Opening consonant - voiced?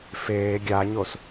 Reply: no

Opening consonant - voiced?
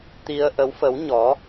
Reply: no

